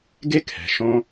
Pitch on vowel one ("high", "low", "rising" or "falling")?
high